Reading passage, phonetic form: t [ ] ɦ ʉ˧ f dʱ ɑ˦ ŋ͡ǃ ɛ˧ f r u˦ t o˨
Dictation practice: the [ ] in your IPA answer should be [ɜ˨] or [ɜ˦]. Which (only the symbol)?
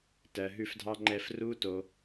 ɜ˨